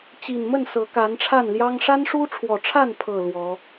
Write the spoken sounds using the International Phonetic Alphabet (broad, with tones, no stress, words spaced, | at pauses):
t͡ɕi˨˩nmə˥˨n sɤ˨˦ka˨˦nʈ͡ʂʰa˥˨nljɑ˦ŋ ʂa˦nʂu˦ʈ͡ʂʰwɔ˨˩ʈ͡ʂʰa˥˨n pʰɤ˥˨lwɔ˨˦